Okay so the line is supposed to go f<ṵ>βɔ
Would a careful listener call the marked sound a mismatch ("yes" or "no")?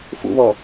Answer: no